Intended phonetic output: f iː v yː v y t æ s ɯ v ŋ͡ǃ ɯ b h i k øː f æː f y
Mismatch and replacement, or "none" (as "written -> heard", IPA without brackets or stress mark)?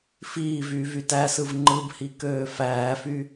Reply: none